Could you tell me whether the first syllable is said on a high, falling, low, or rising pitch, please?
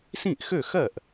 falling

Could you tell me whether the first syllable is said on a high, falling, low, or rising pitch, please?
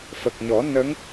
low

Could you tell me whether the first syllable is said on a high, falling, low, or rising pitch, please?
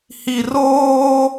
low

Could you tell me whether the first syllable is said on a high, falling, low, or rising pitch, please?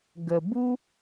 low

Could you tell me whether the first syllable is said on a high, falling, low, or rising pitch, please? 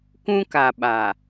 high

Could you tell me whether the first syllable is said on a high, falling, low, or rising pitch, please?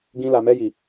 high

